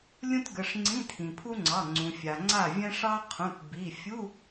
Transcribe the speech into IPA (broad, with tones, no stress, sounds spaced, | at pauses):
lʲ ũ˥ t ɡ ə˩˧˩ ʂ ŋ͡ǀ ĩ˧˥˧ tʰ ĩ˩ pʰ u˥ ŋ͡ǀ ɑ˩˧˩ ŋ͡ǀ ũ˩ fʲ a˩ ŋ͡ǀ a˥˩ vʲ ɛ̃˥ ʂ ɑ˥ qʰ ũ˩˧˩ t b i˩˧˩ fʲ u˧˥˧